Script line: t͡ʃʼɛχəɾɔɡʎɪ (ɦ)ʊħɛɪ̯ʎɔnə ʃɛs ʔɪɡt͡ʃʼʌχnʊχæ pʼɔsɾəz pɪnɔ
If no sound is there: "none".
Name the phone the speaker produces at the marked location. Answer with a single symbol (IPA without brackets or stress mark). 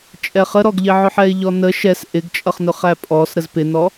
ʕ